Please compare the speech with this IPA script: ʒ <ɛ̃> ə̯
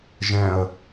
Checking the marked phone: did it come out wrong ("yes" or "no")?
no